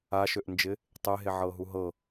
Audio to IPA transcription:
aʃøʔnd͡ʒɪ | tˤeɦeʕɤ ɦuɦɤ

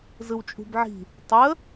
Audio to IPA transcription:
zɯwt͡ʃʼṳbʕi̤ | tˤə

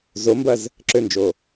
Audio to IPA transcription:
zombɐz | ǁønd͡ʒo

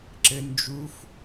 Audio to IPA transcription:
ǁɘ nd͡ʒuf

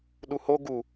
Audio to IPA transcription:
ɗuho ɡu

